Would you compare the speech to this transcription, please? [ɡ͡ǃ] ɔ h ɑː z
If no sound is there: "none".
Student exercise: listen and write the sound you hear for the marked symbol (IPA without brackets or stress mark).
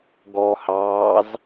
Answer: ɡ